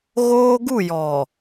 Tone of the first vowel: high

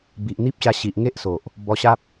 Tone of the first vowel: low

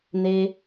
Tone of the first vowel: high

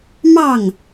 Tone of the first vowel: falling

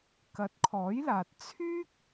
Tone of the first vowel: rising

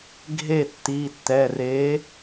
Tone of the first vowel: falling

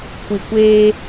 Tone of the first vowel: low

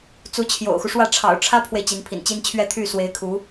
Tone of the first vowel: rising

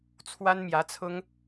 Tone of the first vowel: high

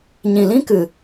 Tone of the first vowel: low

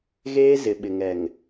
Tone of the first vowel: high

